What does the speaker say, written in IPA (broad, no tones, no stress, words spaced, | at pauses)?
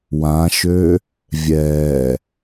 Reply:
wãʃø | vʲɛ